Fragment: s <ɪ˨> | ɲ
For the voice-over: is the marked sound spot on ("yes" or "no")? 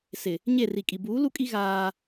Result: yes